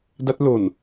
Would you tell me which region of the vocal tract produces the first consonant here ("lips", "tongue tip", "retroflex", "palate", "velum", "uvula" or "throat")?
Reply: tongue tip